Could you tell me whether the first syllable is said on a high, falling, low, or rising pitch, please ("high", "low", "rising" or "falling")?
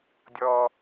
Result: high